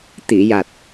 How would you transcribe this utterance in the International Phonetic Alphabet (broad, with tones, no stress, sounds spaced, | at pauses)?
t̪ i˨˩˨ j a˨˩ t̚